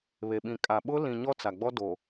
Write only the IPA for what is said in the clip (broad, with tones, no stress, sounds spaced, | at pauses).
β e˨ ɓ ĩ˨ kʼ a˨ ɓ ʊ˦ l ĩ˨ ɲ ɔ˦ t͡s a˨ ɡ͡b ɔ˦ d o˨